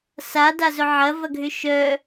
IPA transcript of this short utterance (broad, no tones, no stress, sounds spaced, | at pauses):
s a d a z œ ʕ ɐ v ɐ ɡʱ ʏ ʃ œ